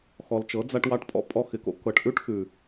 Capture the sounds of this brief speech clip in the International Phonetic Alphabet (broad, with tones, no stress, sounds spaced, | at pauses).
x ɔ˨ l t͡ʃ ɤ˨˦ d͡z a˧ ʈ w ɑ˧ ʈ pʼ ɔ̰˦ pʼ ɔ˧ x ɪ˨ k o̰˦ k ɤ˨ ʈ ʔ ʉ˦ ʈ x ʉ˨